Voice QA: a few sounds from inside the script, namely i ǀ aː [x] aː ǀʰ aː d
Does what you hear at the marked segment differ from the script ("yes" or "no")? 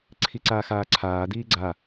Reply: no